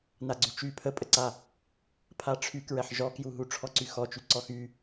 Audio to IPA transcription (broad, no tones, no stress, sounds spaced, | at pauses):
n a ɡ͡ǀ y t͡ʃ y pʰ ə pʼ ə ǀ a | pʰ a ʈ͡ʂʰ y k ɹ ɛ ħ ʒ ɔ k j u ɦ u ʈ͡ʂʰ ɔ ǀ y x ɔ t͡ʃ y ǀ ɔ x y